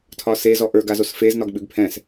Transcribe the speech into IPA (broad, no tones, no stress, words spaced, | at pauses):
tʰɒse zɔʔə˞ɡazos fez nɒɡɓʉɡpʰɛ̃s